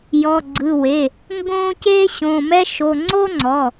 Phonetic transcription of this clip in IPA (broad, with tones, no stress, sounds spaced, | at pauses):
j ɔ˩˧˩ ɡ͡ǀ ɯ˩˧˩ w e˩˧˩ | ŋ ɡ õː˥ c eː˥ ɕ õ˩˧˩ m ɛ˥ ʃ o˩˧˩ ŋ͡ǀ o˥ ŋ͡ǀ ɔ˩˧˩